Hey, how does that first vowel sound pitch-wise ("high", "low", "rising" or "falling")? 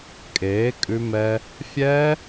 rising